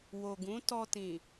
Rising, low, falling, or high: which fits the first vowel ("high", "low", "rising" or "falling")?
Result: low